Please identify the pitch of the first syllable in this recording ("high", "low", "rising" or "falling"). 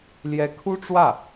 rising